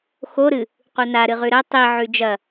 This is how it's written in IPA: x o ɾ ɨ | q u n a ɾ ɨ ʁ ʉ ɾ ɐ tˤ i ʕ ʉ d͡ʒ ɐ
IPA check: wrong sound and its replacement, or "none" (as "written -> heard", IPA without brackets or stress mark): none